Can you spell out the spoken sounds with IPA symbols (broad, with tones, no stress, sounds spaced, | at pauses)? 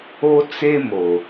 o˦ t͡s e˦ m o˨